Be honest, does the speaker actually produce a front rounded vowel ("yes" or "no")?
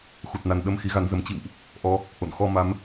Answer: no